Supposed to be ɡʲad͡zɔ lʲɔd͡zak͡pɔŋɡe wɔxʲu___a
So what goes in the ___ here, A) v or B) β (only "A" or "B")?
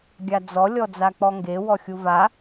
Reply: A